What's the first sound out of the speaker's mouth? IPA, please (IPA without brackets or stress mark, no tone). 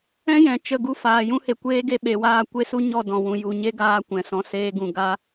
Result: ɛ̃